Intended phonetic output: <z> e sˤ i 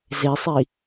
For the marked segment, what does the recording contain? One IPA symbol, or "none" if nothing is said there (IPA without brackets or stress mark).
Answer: z